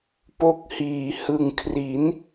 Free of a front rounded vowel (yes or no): yes